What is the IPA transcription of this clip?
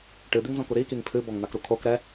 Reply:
ʈ ɨ d̪ i ŋ z ɔ̃ k u ɾ i k i ŋ pʰ ɨ b ɔ ŋ n̪ a k ɾ u kʰ o k ɾ ɛ

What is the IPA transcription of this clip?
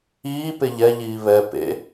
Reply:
iː p e ʎ ɛ ʎ iː β ɛ p ḛ

